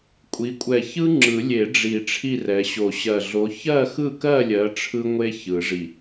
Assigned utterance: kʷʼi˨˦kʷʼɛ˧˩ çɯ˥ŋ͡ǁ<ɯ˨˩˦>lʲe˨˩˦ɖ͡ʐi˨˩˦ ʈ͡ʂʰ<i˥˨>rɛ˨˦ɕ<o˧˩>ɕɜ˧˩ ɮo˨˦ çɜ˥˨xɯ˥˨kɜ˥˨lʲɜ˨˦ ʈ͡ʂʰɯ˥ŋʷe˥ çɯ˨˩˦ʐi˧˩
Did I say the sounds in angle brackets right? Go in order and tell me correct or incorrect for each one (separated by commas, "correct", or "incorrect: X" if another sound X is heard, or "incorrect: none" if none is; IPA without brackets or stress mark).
correct, correct, correct